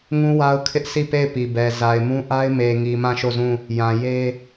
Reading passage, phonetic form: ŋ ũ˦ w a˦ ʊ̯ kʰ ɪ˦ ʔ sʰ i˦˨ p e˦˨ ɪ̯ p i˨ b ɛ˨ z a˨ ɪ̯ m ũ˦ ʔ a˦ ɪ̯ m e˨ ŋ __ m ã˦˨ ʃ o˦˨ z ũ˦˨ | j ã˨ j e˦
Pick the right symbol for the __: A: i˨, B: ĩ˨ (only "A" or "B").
A